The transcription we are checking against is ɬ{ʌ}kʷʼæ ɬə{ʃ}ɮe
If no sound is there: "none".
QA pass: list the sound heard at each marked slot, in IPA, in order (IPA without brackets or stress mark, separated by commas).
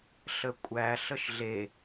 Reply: ə, ʃ